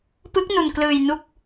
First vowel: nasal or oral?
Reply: oral